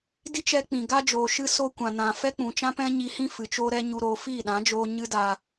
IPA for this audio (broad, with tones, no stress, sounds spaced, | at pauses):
d i˦ t͡ʃ ɛ˧ k͡p ĩ˨ ɡ a˦ d͡ʒ oː˨ ʃ ɨ˧ s o˧ kʷ ã˨ n ã˨ f ɛ˦ k͡p ũ˨ t͡ʃ ã˦ p ɛ̃˦ ɲ i˧ h ĩ˦ f ɨ˨ t͡ʃ o˦ ɾ ɛ˦ ɲ u˧ ɾ oː˧ f iː˦˨ ɗ ã˨˦ d͡ʒ oː˧ ɲ ɨ˦ d a˧